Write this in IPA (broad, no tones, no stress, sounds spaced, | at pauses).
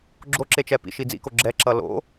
ɡ͡ǁ o ǁ e t͡ʃ ɛ p ḭ ʃ i d͡z ḭ k o ɡ͡ǁ ɛ ǁ ʌ l o̰